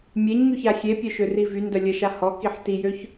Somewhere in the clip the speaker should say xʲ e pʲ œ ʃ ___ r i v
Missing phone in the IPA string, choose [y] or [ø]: ø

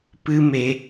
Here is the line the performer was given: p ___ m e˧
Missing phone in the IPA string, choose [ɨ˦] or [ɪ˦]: ɨ˦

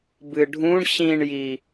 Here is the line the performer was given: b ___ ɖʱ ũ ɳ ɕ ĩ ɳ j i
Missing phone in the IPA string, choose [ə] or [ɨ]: ɨ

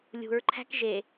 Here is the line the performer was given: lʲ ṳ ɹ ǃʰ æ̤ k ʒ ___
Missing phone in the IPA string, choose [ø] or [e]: e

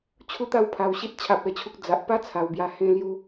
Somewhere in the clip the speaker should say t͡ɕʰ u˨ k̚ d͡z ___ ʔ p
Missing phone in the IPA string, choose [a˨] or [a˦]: a˨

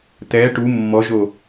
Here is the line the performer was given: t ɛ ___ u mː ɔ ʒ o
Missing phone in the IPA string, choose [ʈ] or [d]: ʈ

